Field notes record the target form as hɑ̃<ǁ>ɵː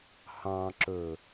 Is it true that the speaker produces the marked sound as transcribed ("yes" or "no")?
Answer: yes